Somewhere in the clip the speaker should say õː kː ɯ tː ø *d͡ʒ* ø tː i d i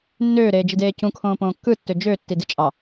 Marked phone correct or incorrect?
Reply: correct